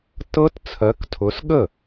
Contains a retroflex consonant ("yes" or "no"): no